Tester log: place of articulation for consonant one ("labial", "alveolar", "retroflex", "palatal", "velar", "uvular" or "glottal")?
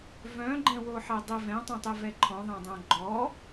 labial